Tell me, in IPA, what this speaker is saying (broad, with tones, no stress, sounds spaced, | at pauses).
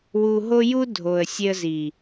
w u˧ ɦ o˦ j u˦ dʱ o˨ ə̯ sʲ e˧ ə̯ z i˨